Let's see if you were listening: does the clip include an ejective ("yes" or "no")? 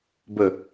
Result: no